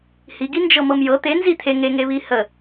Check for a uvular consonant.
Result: absent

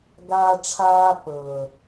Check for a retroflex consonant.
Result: present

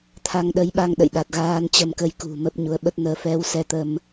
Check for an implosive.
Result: present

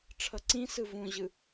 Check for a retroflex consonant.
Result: present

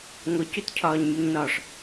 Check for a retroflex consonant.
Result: present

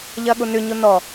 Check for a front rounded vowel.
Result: present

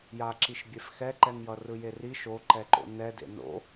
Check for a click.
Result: present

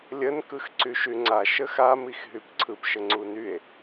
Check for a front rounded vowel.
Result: present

